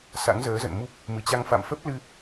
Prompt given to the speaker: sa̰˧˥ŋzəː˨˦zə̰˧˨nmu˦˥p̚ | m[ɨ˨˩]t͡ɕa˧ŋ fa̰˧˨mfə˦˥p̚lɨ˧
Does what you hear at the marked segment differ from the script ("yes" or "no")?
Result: no